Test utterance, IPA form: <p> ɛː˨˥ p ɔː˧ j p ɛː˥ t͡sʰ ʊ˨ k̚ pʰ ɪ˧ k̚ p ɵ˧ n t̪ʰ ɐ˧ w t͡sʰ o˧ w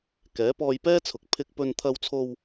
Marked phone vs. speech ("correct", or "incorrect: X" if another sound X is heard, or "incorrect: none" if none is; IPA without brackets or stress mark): incorrect: k